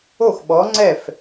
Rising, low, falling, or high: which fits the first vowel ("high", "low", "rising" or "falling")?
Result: falling